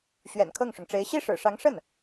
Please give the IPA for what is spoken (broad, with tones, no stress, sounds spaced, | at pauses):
ɕ ɥ ɛ̰˨˩ n kʰ ɤ˥˩ ŋ ʂ ʊ˩ ŋ ʈ͡ʂ e˧˥ ɪ̯ ɕ i˥˩ ʂ ɻ̩˨˩ ʂ ɑ˧˥ ŋ ʂ ə˥˩ n